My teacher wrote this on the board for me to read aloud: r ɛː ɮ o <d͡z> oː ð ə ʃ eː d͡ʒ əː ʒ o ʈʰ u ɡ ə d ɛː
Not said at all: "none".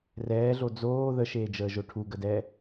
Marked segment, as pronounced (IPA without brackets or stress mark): d͡z